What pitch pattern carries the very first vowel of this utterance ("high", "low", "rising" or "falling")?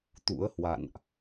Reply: rising